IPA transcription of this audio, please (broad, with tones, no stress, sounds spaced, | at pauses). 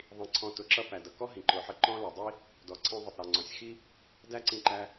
ðˤ ĩ˨˦ ǀʰ ɔ̃˧ t ʊ˨˦ ǁ ʌ˦ p æ˨ d ʌ˨ k ɔ˦ ɦ ĩ˨ ǃ ʊ˨˦ ħ ə˧ ǃ ɔ̃˦ l ʌ˨ dˤ i˦ | d ɔ˨ ǀʰ ĩ˧ ðˤ ʊ˨ tˤ ɾ ʌ˨ ŋ͡ǀ ɔ̃˨ sʲ x i˦ | d æ˦ ǀ ĩ˧ ǃ æ˧